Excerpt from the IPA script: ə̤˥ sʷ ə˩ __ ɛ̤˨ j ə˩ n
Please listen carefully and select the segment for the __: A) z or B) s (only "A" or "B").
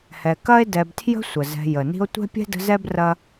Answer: A